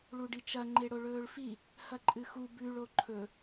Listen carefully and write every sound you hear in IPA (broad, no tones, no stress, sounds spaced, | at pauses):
ɭ u ɖ i t͡ʃ ɐ ŋ͡ǃ e ɽ o ɭ ɵː ɭ f i | h ɐ ǃʼ ɨ x u b ʉ ɭ o ǃʰ ɵ